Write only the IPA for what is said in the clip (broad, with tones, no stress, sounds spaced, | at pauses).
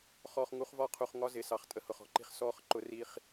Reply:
χ ɔː˨ χ ŋ u˨˦ χ v ɒ˦˨ qʰ u˨ χ ŋ ɒ˦ z ɪ˨˦ s ɑ˨ χ tʼ ə˨ h ʊ˨ χ ɔ̤˨ ǃ i̤˦ χ s ɔː˦ χ ǃ ʊ˦ r i˦ χ